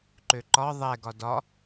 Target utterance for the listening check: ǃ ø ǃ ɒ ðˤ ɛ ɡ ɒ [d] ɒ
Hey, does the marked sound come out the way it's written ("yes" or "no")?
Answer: yes